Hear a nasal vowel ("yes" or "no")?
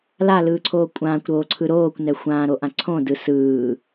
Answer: yes